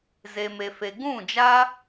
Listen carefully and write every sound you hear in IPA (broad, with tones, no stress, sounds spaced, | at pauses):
z e˧ m e˧ f e˧ ɡ ũ˦˨ d͡ʒ aː˦